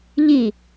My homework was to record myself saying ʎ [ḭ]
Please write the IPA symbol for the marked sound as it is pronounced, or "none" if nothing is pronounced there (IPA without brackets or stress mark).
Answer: i